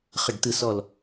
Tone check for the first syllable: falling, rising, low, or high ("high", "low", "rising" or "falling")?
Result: falling